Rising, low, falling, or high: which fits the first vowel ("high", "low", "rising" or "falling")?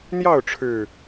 falling